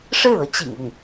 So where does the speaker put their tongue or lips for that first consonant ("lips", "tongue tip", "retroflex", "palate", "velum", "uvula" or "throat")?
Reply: retroflex